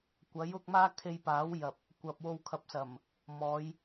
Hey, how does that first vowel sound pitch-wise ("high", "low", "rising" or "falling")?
rising